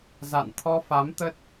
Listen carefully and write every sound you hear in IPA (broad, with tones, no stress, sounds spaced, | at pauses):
z a̰˧˨ n t̪ʰ ɔ˧ f a˨˦ m t̪ ə˦˥ t̚